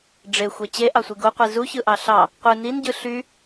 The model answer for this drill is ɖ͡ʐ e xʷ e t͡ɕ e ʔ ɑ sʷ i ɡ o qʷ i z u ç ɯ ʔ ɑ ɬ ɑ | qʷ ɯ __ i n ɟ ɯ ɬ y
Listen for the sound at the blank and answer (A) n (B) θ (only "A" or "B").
A